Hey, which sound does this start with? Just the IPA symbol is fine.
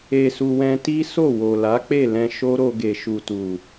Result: e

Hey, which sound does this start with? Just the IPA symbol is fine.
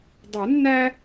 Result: dˤ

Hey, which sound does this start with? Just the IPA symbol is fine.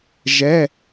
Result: ʒ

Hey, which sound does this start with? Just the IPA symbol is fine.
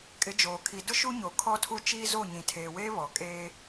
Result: kʼ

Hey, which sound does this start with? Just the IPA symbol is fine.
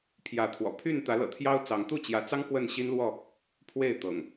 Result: pʰ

